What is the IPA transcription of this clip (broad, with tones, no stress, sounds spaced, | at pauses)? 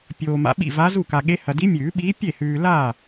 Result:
pʲ oː˨ m a̰˨ ɓ ḭ˥˩ v a˧˥ z u˥˩ k a˨ ɠ e˧˥ h ɐ˨ d i˧˥ mʲ ʉː˨˩˦ ɓ iː˧˥ pʲ e˥˩ h ʉː˨ l a˥˩